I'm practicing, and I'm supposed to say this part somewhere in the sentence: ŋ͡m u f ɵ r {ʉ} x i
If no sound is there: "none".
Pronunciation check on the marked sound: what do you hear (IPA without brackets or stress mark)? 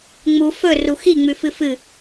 u